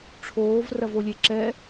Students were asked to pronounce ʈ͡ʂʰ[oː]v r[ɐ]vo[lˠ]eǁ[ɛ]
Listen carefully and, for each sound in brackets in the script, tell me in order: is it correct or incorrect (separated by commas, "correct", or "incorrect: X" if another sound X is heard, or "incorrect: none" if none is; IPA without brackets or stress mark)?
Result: correct, correct, incorrect: lʲ, correct